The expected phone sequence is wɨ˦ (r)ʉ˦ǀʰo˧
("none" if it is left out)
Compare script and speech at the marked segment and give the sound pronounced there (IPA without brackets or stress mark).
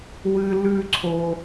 l